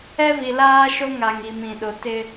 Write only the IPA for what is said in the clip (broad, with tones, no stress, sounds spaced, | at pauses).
ɛ˦ v i˨ l aː˦ ʃ o˦ ŋ a˨ ŋ i˨ m ĩ˨ ɗ ʊ˨ t ɪ˦